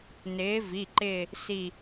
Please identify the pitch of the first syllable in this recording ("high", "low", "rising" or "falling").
rising